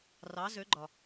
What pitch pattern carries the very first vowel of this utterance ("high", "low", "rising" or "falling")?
rising